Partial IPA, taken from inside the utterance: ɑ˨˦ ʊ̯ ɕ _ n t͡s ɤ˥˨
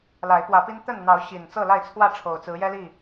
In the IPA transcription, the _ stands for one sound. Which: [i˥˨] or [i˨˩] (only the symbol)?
i˨˩